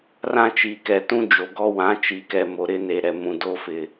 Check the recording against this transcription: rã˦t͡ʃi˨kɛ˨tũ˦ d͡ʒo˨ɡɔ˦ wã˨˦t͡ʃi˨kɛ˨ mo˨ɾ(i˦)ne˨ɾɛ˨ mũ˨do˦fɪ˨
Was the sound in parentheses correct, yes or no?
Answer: no